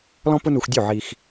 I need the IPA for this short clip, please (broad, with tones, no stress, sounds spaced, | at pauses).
l ɔ̃˥ p ʊ˥ n u˧ x dʲ u˥˩ ʕ i˧ x